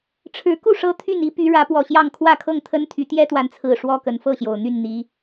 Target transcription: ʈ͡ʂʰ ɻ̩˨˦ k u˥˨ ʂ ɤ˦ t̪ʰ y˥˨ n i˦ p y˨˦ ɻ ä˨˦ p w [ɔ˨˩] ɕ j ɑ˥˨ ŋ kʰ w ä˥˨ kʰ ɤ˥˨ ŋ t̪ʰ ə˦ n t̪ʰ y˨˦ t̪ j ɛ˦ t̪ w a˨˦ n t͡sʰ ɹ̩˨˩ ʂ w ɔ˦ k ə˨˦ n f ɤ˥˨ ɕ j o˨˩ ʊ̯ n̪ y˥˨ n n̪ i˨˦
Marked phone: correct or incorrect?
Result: correct